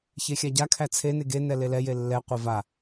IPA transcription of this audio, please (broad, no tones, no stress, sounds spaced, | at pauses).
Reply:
ç e xʲ a ɟ a kʰ æ t͡sʰ e n e ɡ e n ɛ l e l ɛ j e lː ɛ qʷ e v a